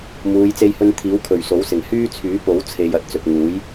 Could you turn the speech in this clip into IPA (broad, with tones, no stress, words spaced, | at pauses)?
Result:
muː˨˧j t͡se˧jhɵ˧nt̪ʰiː˨˥wkʰɵ˨˩ɥ so˨˥wsɪ˨˩ŋ hyː˥ t͡sʰyː˨˥ po˨˥wt͡sʰe˨j ɐ˧t̚t͡sɵ˨t̚ŋuː˨˥j